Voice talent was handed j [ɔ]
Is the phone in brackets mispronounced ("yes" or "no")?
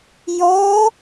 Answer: no